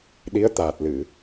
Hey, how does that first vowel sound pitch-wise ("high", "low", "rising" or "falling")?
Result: rising